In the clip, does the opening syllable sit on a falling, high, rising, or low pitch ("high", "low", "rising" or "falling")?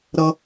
high